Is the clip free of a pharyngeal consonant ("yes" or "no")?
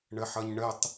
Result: no